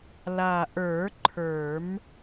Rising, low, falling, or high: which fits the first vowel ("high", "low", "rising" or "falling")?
low